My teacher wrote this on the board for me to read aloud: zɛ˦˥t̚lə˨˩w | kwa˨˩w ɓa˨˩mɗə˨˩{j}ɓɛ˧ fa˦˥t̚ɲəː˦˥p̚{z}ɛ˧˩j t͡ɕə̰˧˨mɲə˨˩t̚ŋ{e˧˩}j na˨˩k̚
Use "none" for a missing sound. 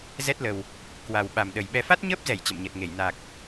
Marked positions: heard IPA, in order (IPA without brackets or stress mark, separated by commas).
j, z, e˧˩